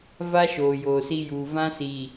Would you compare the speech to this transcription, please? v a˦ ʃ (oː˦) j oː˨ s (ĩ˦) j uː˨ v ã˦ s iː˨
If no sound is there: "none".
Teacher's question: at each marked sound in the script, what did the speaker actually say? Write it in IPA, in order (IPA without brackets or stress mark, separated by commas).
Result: oː˨, i˦